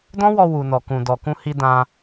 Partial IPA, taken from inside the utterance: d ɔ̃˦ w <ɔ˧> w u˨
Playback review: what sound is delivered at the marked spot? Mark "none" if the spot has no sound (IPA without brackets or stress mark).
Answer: ɔ˧